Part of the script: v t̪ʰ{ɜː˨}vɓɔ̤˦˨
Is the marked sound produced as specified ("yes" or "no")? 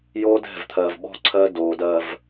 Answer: yes